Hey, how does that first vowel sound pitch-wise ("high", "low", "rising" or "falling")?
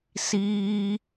high